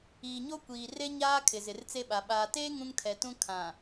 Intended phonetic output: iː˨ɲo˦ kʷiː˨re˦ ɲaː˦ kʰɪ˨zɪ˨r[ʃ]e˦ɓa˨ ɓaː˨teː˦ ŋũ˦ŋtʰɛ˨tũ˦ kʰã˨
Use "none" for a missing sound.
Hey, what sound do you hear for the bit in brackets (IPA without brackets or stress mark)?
t͡s